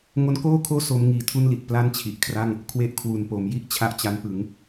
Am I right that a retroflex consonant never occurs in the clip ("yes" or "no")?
yes